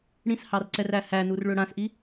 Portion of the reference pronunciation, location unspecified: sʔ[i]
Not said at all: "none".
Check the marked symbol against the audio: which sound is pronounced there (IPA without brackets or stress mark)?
i